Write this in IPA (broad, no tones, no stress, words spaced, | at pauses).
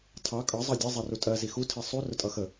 tʰɑ kʼʌ zˤɑdʲɛ zˤɛrutʼɜ zixu tʰisˤu rʊtʼʌxə